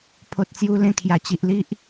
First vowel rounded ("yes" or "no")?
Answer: yes